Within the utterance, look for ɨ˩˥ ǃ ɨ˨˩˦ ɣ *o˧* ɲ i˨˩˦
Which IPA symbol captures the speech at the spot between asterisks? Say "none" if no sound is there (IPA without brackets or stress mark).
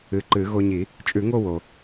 o˧